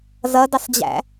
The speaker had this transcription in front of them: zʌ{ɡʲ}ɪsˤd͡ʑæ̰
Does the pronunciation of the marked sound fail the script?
yes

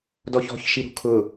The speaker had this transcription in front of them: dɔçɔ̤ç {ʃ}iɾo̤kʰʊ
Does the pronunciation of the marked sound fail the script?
no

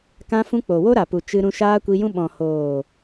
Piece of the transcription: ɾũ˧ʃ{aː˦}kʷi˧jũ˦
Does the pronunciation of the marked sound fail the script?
no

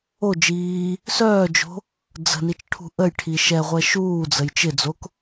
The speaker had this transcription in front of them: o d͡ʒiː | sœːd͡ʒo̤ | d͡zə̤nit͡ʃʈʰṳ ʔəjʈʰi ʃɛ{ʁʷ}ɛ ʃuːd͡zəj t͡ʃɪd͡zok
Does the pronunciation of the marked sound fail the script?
no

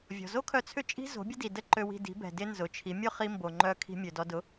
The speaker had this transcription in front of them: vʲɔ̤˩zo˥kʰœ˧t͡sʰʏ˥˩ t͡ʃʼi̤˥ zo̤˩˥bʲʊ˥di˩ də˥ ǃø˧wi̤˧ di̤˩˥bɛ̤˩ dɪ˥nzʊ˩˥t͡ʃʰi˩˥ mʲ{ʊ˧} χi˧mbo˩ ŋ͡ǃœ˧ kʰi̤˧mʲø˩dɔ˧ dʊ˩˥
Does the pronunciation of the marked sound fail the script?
yes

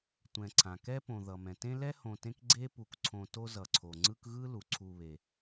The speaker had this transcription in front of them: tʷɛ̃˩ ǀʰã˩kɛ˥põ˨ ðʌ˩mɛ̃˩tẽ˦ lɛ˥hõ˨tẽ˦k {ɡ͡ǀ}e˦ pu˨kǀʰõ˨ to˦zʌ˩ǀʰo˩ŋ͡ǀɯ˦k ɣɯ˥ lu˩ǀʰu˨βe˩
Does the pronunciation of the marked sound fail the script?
no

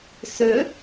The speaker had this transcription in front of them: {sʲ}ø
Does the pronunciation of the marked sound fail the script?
yes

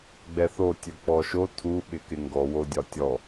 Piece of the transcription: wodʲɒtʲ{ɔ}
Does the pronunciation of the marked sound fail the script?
no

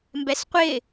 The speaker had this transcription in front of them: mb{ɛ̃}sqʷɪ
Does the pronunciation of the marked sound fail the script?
yes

